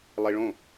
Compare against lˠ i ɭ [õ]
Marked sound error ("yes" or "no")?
no